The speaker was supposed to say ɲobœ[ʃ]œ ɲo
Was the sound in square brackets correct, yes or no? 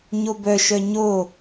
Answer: yes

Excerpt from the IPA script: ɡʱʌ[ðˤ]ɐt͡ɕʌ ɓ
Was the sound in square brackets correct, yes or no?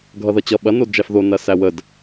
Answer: no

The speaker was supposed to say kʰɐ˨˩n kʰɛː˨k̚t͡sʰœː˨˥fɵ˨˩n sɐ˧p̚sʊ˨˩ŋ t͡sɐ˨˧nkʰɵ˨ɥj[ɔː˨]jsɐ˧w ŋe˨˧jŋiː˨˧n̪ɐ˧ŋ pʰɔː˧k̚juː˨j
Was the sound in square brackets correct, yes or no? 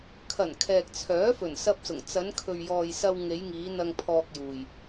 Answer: yes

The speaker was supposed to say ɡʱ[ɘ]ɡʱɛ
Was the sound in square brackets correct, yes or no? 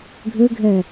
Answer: yes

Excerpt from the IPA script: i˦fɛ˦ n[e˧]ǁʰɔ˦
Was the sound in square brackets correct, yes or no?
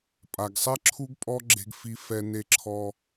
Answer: no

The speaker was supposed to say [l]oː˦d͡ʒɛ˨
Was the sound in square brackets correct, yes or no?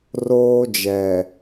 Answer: no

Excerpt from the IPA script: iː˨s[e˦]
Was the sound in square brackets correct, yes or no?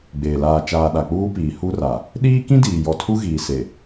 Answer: no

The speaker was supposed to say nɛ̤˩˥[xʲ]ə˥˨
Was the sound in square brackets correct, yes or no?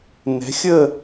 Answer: yes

